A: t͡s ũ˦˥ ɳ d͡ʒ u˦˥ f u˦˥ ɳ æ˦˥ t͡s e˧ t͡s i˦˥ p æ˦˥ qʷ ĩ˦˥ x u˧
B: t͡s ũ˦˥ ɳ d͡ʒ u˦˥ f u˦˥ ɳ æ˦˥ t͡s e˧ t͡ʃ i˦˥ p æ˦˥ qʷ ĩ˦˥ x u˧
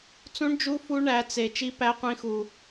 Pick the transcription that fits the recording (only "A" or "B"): B